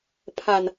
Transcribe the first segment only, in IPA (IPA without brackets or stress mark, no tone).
pʰ